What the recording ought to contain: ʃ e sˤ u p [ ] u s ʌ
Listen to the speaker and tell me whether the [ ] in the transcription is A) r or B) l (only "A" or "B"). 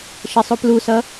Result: B